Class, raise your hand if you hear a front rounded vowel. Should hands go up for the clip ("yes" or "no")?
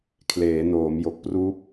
no